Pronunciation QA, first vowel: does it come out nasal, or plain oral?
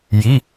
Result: oral